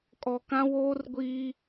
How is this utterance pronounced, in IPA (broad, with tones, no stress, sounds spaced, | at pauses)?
kʼ ɔ˨ k ã˦ w oː˦ r ɡʷ iː˦